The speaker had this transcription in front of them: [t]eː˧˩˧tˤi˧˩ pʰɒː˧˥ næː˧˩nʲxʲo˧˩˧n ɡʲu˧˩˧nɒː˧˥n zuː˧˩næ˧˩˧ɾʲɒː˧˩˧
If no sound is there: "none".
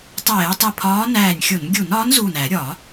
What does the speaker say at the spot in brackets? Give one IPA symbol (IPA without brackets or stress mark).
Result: tˤ